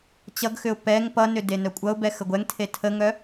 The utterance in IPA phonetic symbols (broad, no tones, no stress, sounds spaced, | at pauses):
t͡ɕ ʌ ɡ x ʏ ʊ̯ p ɛ ŋ p ʌ n ʏ d e n œ kʷʼ ʌ ʊ̯ b ɛ x ə ɡʷ ɛ ŋ tʰ e tʰ ə ŋ œ